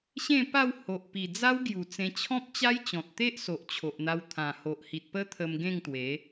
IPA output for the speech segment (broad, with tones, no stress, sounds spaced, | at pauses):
ɕ ẽ˥˧ p a˥˧ w h o˨ ʔ p i˨˩ d͡z a˦ w ɡ j u˨˩ t͡s ẽ˧ t͡ɕʰ ɔ̃˦ p̚ t͡ɕ a˦ j t͡ɕ ɔ̃˨ t̚ t̪ e˦ ʔ s o˨ ʔ t͡ɕʰ o˨ ʔ n̪ a˧ w t̪ʰ ã˨˩ h o˨ ʔ h i˨ t̚ p ə˦ t̪ʰ ə˧ m ɡ ẽ˥˧ ŋ t̪ w e˨˦